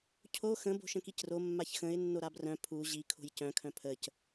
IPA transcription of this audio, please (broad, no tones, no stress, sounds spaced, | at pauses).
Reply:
cʰ o x ə̃ b o̤ ʃ ə̃ k i c r o mː a ç x ə̃ ɪ̯ nː o ɾ a b r œ̃ pʰ u ʑ i kʰ o̤ j c œ̃ kʰ œ̃ pʰ ə c